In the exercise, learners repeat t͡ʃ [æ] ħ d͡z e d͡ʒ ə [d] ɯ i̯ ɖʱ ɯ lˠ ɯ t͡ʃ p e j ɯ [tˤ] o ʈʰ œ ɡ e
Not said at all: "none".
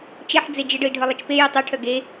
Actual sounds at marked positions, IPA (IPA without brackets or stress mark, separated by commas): ɛ, ɖ, tˤ